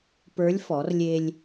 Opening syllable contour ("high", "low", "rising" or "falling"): rising